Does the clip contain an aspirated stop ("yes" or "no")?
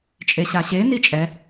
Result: no